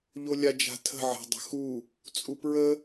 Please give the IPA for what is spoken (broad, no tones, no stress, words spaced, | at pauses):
ʎolʲad͡ʒa̤ tʰə̤ʕa̤dˤə̤ xu | t͡sʼupɹə